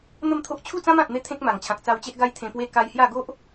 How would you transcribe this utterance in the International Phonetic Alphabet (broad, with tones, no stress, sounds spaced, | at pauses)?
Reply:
n̪ ə˥˧ m t̪ʰ o˦ ʔ t͡ɕʰ u˥˧ t͡s ã˦ m ã˨ t̚ n̪ e˧ t̪ʰ ẽ˦ k̚ m a˨˩ ŋ t͡ɕʰ ã˨ k̚ t͡s a˧ w t͡ɕ e˦ ʔ ɡ a˦ j t̪ʰ ẽ˧ p w e˦ k a˧ j h j a˥˧ ɡ o˦ ʔ